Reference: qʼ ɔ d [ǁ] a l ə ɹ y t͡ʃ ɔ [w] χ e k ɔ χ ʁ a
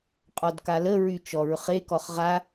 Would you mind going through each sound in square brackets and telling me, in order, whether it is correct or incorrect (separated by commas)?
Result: incorrect, incorrect